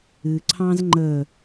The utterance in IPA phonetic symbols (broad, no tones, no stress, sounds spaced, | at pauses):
ɨ ǀʰ ɑ̃ z ŋ͡ǃ ə